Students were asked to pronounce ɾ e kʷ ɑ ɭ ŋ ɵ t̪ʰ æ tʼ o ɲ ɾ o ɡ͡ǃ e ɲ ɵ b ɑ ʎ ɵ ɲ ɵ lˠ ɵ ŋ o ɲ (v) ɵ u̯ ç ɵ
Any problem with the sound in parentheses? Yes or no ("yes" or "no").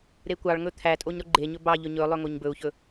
yes